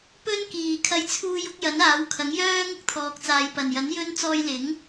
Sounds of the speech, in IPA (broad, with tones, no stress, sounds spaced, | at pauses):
p ɵ˥ n k iː˨˩ kʰ ɐ˧ j t͡sʰ uː˧ j ʊ˨˥ k̚ j ɐ˨˥ n aː˨˥ w kʰ ɐ˨˥ ŋ j œː˥ ŋ ʊ˥ k̚ t̪ʰ ɔː˨ k̚ t͡s aː˨ j p ɐ˨˩ n j ɐ˨˥ n j ɵ˥ n t͡s ɔː˧ j l ɪ˨˥ ŋ